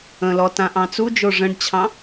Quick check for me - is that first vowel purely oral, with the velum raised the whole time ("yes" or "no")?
no